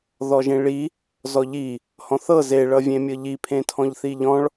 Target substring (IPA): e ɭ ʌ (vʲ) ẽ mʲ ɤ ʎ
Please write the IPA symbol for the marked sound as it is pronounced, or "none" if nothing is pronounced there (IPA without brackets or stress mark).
vʲ